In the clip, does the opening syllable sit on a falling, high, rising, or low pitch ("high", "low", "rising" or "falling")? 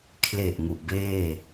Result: low